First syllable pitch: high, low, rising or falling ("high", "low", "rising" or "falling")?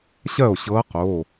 falling